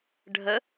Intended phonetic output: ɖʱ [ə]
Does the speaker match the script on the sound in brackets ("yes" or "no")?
yes